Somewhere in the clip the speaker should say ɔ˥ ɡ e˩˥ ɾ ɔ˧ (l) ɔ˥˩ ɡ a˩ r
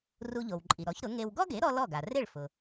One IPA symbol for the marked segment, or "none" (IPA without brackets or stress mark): l